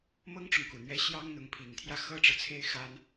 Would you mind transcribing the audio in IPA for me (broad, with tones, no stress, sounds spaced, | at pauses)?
m ɤ˥ ŋ ʈ͡ʂ ʊ˨ ŋ k u˨˩ n̪ ɥ ɛ˧˥ ɕ j ɑ˥ ŋ n̪ ʊ˧˥ ŋ pʰ i˨˩ ŋ t̪ʰ j ä˥˩ x ɤ˥ ʈ͡ʂ ɤ˨ t͡sʰ e˥ ɪ̯ x a˥ n